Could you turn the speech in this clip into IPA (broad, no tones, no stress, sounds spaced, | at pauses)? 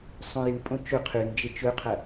sˤ õ j ɨ pʼ õ t͡ʃ ɵ qʰ ʉ n d͡ʒ e t͡ʃ ɵ qʰ ɐ